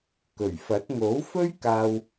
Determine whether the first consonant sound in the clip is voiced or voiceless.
voiceless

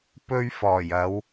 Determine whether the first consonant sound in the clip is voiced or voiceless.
voiceless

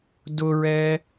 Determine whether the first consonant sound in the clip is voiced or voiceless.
voiced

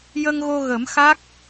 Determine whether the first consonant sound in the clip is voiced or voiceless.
voiced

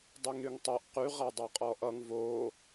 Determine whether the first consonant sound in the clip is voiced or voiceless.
voiced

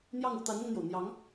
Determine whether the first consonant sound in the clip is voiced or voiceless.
voiced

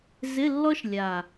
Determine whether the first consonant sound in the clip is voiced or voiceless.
voiced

